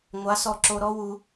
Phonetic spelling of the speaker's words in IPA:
ŋʷa˨˦sɔ˧ǁo˧ɾɔ˦ wu˦

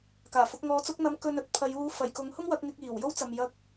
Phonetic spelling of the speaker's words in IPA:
kaː˨˩fʊ˨˥k̚ŋɔː˧t͡sʊ˥k̚ n̪ɐ˨˥m kɵ˧nɵ˧t̚pʰɐ˨˧j uː˧ fɐ˨˩jkʊ˨˥ŋhʊ˥ŋ wɐ˨˥k̚ŋɪ˧k̚ iː˨˩w jo˥wt͡sɐ˨mjɐ˧k̚

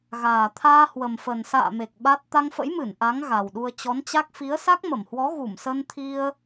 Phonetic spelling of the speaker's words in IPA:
ɣaː˨˩t̪ʰaː˧ hwə˨˩mfə˨˩n sa̰ː˧˨me˨˩k̚ ɓa˦˥t̚ t̪a˧ŋfə̰˧˥jmɨ˧˩n ʔa˨˦ŋ ɣa˨˩wɗu˧ə̯ t͡ɕɔ˨˦nt͡ɕa˦˥k̚ fi˨˦ə̯sa˦˥k̚mə˧˩mhwɔ˨˦ ɣu˧˩msə˧nt̪ʰi˧ə̯

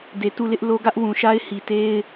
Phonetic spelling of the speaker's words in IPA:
de˨ tu˦˨lɪ˦ʔlo˦ ɡä˦ʔwũ˨ʃa˦ɪ̯ hi˨te˦ɪ̯

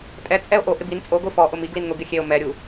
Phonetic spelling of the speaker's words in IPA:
tʼɛ t͡sʼɛo̯ʔo ʔɪbin t͡sʼoɡʷi fɔ ʔʊmi ɡlinŋʊ ɡɪxʲeo̯ mɛɾʲu

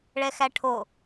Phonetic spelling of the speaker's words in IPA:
ɭɛxæʈʰo

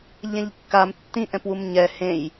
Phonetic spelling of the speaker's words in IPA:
ʎɛ̃ʎkːam tːĩʔɛ̃pwum ɲɛ hẽj

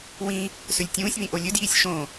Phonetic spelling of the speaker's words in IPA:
wĩ | sɵlʲtʲũːsʲβĩ ʔolʲɵdjiːsʲ ʃõ

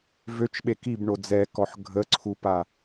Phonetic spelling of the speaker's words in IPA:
vøt͡ʃɓe kibɳo d͡zɛkɔħ ɡʱəǀʰupa

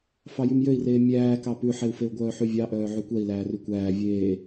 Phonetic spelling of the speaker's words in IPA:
fɑjymjøi̯reː mʲæːkɑ pʉħeu̯feu̯ɡʷœː ħyvʲɑʔœː ʕykʷɛi̯ læːrykʷæː vʲeː

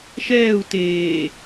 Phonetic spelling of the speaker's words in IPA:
ʃɛːu̯ teː

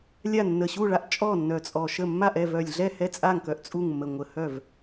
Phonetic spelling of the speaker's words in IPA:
lʲa˥˩nːə˧˩ ɕu˥˩ɭa˥˩ʔ t͡ʃʼɔ˥˩ nːœ˧˩t͡sʼɔ˧˩ʃə˥˩ mːa˥˩ʔɛ˥˩vœ˧˩lʲɮɛ˥˩ hɛ˥˩t͡sʼa˥˩ŋkœ˧˩ʔ t͡sʼu˥˩ŋmːə˧˩ŋʷə˧˩hœ˥˩v

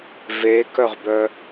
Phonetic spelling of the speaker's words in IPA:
vekœʁbœ

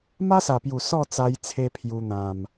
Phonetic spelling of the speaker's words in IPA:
ma˦sa˨˩pju˨˩ sɔ˥˧t͡sa˧j t͡sʰe˦pʰju˧n̪ã˨˩m

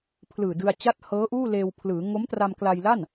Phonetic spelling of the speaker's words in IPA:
pʰlɯː˨˩dɯ˧a̯t͡ɕa˥˩t̚ hɤː˦˥ ʔuː˥˩leː˧wpʰlɯː˩˦ ŋo˦˥mtra˧mkla˧jla˥˩n

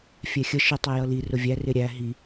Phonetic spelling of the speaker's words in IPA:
fʲɛxʲə ʃɪ tˤɛjʌli rʊvʲæ rɪɾʲæ ɦi

